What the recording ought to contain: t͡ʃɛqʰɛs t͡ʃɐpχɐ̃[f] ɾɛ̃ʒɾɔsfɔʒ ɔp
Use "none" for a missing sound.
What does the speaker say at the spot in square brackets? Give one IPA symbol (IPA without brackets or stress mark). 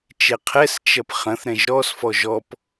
θ